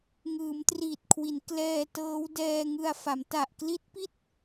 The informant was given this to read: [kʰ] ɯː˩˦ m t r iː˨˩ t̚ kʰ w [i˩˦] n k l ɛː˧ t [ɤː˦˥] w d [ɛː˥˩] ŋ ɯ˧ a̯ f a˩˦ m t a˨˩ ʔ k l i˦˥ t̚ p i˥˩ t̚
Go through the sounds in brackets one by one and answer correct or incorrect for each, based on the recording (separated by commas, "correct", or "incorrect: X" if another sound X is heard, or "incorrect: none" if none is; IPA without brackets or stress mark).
incorrect: ŋ, correct, correct, incorrect: ɛː˧